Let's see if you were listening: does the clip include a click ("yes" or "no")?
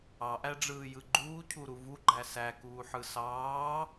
yes